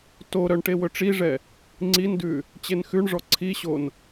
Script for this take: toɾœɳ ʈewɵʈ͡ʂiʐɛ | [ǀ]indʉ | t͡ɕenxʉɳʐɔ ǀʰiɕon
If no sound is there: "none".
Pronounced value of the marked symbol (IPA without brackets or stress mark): ŋ͡ǀ